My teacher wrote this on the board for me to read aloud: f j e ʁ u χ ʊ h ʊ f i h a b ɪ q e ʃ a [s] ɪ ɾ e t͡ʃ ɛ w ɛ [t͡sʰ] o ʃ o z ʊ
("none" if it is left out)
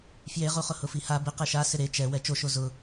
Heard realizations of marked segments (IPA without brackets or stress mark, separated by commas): s, t͡ʃ